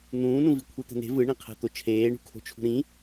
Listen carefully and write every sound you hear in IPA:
n̪ ũː n ũ v i kʷʰ i t̪ ɛ̤ n e̤ v ɯ ɳ ĩ qʰ ɛ̤ t̪ o t͡ʃʰ eː ɳ ṳ kʰ o̤ t͡ʃʰ ṳ ɾ ĩ

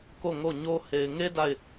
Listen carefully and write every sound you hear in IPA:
k o˦˨ ŋ o˦˨ ɲ o˦ h e˨ ɪ̯ ŋ e˦ d a˦˨ ɪ̯

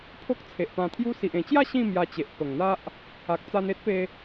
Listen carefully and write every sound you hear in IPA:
pʰ o˦ k̚ t͡sʰ e˨ ʔ p ã˧ t̪ʰ j u˦ s i˨ ʔ ẽ˨˩ t͡ɕ j a˥˧ ɕ ĩ˥˧ m j a˧ t͡ɕ e˨ ʔ p ə˨˩ ŋ n̪ a˦ ʔ | a˨ k̚ t͡s a˧ n e˦ t̚ p e˧

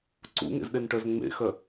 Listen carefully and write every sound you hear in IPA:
ǀ ṵ ŋ ḛ z ɗ e n ʈ œ z ŋ͡m ḛ x œ

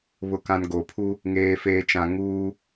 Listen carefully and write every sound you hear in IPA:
β ʊ˨ k ã˨ n ɡ o˨ pʰ u˦ | ŋ eː˨ f eː˨ t͡ʃ ã˨ ŋ uː˦

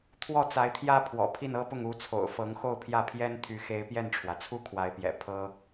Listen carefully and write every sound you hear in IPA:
t̪ʰ w ɔ˥˩ t͡s a˧˥ ɪ̯ t̪ʰ j ä˥ pʰ w ɔ̰˨˩ pʰ i˥˩ n ɤ˥ p ʊ˥˩ ŋ u˧˥ t͡sʰ o̰˨˩ ʊ̯ f ɤ˧˥ ŋ x o˥˧ ʊ̯ pʰ j ä˥˩ pʰ j ɛ˥ n t̪ʰ y˧˥ x e˧˥ ɪ̯ p j ɛ˥˩ n ʈ͡ʂʰ w ä˩ t͡sʰ u˥ kʰ w a˧˥ ɪ̯ p j ɛ̰˨˩ pʰ ɤ˥

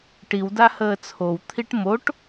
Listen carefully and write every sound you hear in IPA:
ʈ i w d a h əː t͡sʰ o w t̪ʰ i ʈ m o ʈ

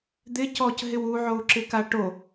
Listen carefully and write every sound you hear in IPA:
d̪ ɪ c ɔ c ɦ ɪ w u ʕ o u̯ ǁ ɪ k a ʈ o

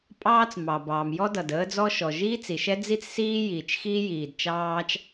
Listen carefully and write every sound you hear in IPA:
pʼ ɑː˥ t͡s m ɑ˩ b ɑː˩ m j ɔ˥ d ʌ˩ d əː˥ d͡z ɔ˥ ʃ ɔ˩ ʒ iː˥ t͡s i˩ ʃ ɛ˥ d͡z i˥ t͡s s iː˥ j iː˩ t͡ʃ x iː˥ j iː˩ d t͡ʃ ɑː˥ t͡ʃ

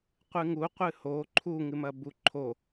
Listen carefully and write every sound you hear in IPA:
qʷ ɨ ŋ u qʷ ɨ h o ǃʰ u ŋ ɨ m ɐ b u ǃʰ o

